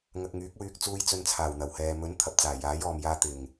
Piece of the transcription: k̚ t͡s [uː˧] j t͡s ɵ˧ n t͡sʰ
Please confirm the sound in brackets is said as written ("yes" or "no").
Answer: yes